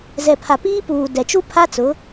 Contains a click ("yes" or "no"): no